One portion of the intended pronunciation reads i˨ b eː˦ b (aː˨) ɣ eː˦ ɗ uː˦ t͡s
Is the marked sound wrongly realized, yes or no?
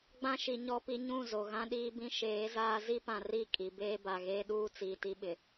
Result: yes